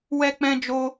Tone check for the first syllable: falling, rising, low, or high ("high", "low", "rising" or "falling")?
high